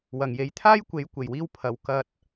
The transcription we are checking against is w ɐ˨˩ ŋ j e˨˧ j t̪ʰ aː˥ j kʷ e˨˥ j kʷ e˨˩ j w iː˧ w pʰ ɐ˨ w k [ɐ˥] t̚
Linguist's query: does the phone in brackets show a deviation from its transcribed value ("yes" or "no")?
yes